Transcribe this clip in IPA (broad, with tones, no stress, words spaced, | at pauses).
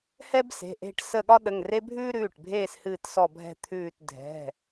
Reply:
hɛ˦bse̤˩˧˩ʔe̤˦˨ʈsə˦˨ ɠɒ˦ɗə˩˧˩ŋre˦ bʱʉː˦ɾʉː˩˧˩ʈbʱeː˦˨s hɨː˦˨tsɔ˦˨bʱɛ̤˦˨ t̪ʰʉː˦˨t dʱɛ̤˩˧˩